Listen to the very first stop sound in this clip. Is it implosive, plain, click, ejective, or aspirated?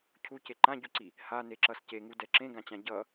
aspirated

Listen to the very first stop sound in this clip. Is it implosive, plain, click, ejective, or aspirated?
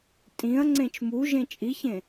ejective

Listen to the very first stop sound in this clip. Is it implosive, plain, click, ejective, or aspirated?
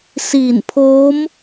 aspirated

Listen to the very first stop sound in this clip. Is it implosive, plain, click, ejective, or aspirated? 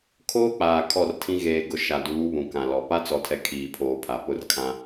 aspirated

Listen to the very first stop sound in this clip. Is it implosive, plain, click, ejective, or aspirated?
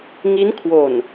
aspirated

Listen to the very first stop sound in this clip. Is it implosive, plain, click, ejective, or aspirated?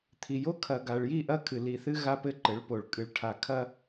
aspirated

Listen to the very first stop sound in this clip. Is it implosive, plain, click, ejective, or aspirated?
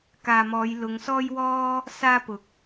plain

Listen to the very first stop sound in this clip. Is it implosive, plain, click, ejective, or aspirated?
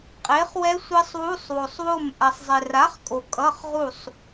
ejective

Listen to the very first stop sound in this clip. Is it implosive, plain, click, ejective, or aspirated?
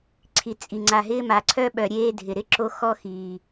click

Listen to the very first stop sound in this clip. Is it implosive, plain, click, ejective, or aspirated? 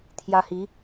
aspirated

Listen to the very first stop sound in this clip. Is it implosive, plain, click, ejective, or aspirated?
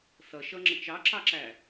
click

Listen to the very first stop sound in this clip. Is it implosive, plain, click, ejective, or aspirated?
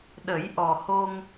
implosive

